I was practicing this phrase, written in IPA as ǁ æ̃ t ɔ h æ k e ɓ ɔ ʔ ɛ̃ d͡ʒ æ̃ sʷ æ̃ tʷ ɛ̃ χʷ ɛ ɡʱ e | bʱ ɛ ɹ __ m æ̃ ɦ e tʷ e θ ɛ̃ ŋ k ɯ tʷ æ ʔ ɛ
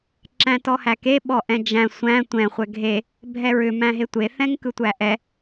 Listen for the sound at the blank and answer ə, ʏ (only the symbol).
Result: ʏ